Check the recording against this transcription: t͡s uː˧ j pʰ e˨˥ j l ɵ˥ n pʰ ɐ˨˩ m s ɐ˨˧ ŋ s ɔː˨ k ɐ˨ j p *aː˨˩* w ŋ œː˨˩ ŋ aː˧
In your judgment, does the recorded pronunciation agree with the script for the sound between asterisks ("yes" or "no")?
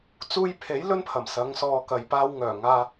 no